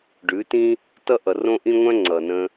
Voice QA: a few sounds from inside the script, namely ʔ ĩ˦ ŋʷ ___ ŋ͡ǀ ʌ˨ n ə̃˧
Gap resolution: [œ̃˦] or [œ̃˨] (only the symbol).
œ̃˦